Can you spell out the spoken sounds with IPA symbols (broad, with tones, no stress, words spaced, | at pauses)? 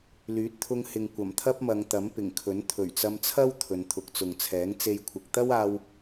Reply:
lyː˨˥t̚t̪ʰʊ˧ŋhɪ˨ŋ kʷɐ˨˩mt̪ʰɐ˥p̚mɐ˨˧ŋ t̪ɐ˨˥mpɪ˨˩ŋkʰɵ˨˥n t̪ʰɵ˨˩ɥt͡sɐ˧mt͡sʰɐ˥w t̪ʰɵ˨nt̪ʰʊ˨˥k̚t͡sʊ˨ŋt͡sʰɛː˨˥ŋ t͡se˧jkʷʰɪ˨k̚ t̪ɐ˥waː˧w